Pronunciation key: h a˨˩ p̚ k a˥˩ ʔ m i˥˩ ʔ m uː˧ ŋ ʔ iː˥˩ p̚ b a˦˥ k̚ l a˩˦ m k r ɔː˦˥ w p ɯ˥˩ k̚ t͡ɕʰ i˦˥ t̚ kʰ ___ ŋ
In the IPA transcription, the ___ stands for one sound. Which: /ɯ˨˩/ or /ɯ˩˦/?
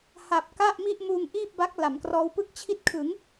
ɯ˩˦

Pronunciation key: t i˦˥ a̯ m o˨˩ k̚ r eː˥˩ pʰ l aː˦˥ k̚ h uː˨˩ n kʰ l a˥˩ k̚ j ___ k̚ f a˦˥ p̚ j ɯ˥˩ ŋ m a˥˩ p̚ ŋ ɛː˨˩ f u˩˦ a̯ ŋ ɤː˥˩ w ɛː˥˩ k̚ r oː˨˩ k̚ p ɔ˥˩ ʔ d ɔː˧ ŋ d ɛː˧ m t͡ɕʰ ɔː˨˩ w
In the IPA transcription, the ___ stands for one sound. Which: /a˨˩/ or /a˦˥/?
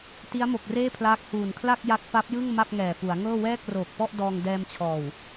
a˦˥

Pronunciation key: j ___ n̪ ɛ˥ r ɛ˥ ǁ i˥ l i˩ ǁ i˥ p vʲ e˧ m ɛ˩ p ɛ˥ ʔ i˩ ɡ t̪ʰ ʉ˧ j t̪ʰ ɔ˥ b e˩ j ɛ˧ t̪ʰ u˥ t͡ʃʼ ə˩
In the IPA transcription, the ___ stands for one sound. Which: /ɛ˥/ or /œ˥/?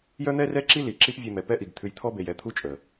œ˥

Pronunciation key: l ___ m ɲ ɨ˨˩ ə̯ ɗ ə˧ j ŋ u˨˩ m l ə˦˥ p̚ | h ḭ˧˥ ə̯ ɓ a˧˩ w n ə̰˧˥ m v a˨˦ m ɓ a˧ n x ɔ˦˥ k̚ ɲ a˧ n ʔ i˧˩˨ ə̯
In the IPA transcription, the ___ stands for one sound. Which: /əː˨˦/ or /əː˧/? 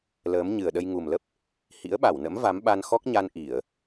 əː˨˦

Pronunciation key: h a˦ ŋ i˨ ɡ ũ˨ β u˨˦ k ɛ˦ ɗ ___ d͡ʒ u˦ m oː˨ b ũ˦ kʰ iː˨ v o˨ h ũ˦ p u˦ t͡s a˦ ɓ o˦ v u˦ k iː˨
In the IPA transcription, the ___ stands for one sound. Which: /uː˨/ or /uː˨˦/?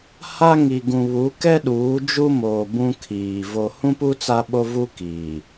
uː˨˦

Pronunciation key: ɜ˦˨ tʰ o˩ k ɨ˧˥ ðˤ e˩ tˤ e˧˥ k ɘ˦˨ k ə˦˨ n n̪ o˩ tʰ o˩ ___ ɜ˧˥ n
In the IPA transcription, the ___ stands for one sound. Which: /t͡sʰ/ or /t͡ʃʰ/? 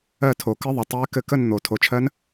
t͡ʃʰ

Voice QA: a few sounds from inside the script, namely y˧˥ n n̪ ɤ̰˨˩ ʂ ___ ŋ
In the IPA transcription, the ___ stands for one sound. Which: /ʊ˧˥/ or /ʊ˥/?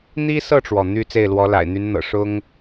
ʊ˥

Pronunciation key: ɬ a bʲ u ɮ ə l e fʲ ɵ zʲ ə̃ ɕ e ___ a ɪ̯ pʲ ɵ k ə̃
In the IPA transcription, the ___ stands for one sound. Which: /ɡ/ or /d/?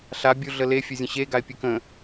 ɡ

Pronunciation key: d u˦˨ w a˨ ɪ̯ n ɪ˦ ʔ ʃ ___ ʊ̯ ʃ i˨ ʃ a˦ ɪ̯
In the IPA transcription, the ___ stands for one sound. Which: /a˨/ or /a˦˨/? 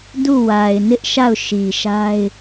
a˦˨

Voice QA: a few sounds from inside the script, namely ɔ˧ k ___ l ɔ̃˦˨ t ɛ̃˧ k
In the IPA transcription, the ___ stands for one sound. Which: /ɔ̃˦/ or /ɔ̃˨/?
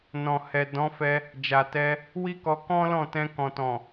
ɔ̃˦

